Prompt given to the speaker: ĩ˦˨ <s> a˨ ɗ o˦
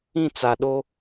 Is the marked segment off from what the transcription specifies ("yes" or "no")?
yes